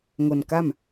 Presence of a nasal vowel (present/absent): absent